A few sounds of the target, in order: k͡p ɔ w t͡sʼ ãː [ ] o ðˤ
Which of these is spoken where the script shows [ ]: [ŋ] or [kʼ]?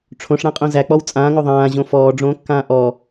ŋ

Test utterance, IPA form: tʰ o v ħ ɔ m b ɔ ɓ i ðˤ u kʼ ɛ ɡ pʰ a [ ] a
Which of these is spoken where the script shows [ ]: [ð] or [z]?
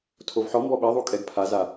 z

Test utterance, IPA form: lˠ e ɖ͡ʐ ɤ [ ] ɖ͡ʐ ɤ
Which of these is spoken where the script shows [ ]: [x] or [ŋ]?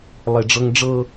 ŋ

